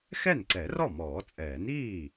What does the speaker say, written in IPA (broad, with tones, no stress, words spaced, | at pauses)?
xɛ˥˩nǀɛ˨˩˦rɔ˥˩ mɔː˨˩˦t͡sʼɛː˨˩˦niː˥˩